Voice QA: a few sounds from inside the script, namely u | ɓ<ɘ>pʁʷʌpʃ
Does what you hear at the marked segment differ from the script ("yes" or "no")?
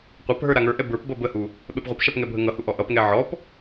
yes